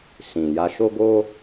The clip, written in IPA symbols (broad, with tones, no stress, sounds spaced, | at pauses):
s ĩ˨ j a˧ ʃ o˦ ɡ o˦